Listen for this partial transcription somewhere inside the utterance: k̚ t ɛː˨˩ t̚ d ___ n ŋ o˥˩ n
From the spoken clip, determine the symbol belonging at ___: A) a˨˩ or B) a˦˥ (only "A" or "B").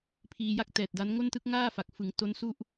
B